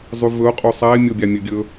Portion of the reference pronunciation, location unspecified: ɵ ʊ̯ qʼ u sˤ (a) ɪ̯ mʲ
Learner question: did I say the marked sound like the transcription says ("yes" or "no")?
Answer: yes